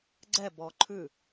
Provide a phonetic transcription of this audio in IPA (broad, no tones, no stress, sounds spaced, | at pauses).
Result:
ɡ͡ǀ ɛ b ɔ ǃʰ ʉ